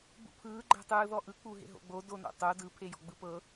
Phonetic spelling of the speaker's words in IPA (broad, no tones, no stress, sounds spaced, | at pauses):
b ṵ pʰ ɯː ɡ͡ǃ ɛ̤ tˤ ɯː ð ɔ ʔ ɯ k͡p u ɦ ḛ ɦ o̰ ɡ͡b o d o n o̰ tˤ o d ɯ pʰ e j ɔ̤ ɡ͡b ɯ p ɤ